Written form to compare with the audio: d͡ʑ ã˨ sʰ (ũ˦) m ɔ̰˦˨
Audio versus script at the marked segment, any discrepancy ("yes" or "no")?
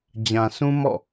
no